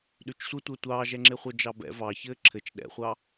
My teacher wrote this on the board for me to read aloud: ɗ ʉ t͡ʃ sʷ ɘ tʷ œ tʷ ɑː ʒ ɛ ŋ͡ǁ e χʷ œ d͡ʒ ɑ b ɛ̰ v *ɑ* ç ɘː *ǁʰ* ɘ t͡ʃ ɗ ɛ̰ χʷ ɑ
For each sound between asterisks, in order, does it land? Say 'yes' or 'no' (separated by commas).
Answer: yes, yes